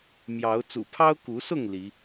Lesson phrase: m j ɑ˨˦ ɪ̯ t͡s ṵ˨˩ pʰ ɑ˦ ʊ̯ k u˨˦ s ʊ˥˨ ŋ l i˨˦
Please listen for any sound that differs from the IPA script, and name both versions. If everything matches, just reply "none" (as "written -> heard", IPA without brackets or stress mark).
ɪ̯ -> ʊ̯